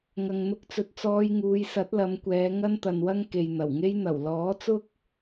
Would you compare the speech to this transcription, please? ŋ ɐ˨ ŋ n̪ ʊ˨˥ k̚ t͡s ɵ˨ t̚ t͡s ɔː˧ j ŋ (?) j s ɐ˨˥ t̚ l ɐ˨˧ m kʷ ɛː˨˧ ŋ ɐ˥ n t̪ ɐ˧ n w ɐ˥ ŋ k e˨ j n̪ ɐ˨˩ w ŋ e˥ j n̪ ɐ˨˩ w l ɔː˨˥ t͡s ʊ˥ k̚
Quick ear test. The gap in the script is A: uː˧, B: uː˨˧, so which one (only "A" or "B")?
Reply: B